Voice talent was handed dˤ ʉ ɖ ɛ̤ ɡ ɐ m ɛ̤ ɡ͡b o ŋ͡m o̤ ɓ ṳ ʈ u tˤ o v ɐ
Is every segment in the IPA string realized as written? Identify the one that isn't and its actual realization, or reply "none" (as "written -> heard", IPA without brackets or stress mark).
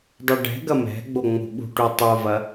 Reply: none